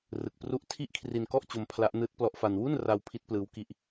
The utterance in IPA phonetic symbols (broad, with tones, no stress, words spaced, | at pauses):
rɯ˨˩k̚pru˦˥ʔ tʰi˦˥ʔ kʰri˧nkɔ˥˩ʔt͡ɕo˧m pʰla˦˥ʔ nɯː˦˥t̚plɔ˦˥ʔfa˧n wu˥˩nra˧w pʰi˦˥t̚plɯː˦˥wki˦˥ʔ